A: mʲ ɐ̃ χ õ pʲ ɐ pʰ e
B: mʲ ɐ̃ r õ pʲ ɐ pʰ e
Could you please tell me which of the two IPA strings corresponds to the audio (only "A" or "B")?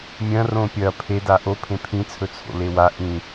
B